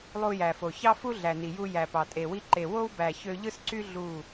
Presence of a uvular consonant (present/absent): absent